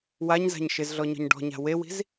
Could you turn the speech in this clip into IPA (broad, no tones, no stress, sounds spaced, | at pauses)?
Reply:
w a ɲ z a̤ ɲ ʃ ɪ z ɮ ɔ ɲ ɔ̤ ɲ ɖ ɔ̤ ɲ a̤ w e w i̤ z